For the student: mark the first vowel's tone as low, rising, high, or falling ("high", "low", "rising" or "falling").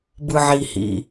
low